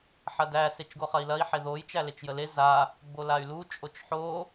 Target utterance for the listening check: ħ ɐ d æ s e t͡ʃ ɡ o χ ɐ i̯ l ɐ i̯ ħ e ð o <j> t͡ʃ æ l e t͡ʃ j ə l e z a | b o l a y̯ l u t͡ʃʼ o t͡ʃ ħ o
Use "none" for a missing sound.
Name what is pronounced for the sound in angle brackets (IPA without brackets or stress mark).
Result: j